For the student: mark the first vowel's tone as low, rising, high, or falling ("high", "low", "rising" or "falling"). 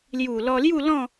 low